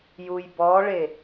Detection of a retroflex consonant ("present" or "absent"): present